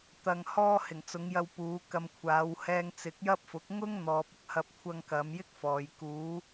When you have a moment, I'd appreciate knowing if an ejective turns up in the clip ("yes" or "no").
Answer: no